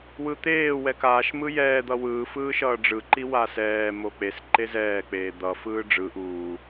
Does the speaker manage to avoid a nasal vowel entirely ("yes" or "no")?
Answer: yes